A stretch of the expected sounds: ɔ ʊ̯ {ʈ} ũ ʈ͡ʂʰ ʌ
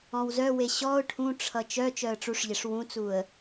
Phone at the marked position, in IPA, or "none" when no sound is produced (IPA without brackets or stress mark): ʈʰ